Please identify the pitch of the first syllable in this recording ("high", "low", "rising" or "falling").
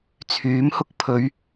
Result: rising